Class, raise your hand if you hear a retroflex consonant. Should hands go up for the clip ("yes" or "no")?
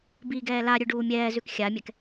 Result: yes